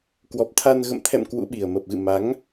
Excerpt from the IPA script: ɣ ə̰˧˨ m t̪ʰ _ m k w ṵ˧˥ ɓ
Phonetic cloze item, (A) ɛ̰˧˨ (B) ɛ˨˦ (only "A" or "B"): A